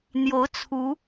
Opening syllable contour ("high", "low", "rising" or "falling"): rising